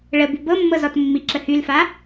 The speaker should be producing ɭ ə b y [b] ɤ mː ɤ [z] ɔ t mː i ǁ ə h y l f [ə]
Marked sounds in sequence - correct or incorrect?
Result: correct, correct, incorrect

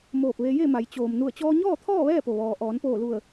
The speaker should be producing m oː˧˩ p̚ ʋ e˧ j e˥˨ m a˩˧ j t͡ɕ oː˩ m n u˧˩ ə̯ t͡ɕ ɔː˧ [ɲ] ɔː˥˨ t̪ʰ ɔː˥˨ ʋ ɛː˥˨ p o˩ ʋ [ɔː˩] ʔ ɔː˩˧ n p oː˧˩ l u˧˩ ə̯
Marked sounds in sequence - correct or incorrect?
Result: correct, correct

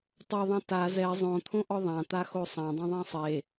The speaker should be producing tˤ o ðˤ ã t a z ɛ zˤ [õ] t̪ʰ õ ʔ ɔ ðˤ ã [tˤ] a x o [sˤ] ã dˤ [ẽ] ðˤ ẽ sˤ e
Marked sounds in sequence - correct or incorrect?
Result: correct, incorrect, correct, correct

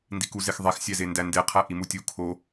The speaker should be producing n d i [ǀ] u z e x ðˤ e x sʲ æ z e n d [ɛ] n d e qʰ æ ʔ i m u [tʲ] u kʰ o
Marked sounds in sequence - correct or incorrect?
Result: incorrect, incorrect, correct

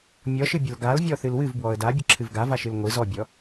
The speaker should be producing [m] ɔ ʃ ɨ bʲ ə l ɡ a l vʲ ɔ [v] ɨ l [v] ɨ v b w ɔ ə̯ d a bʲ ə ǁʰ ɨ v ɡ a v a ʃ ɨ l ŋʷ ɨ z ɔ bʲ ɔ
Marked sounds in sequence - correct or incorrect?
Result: incorrect, incorrect, incorrect

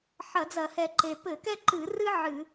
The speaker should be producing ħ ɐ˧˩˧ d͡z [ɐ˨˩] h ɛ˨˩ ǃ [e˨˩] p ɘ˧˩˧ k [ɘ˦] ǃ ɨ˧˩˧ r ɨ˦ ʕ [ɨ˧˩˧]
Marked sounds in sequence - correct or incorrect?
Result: incorrect, correct, incorrect, correct

